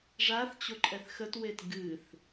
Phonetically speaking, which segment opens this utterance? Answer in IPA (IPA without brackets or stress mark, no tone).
ʐ